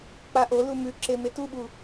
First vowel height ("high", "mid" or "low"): low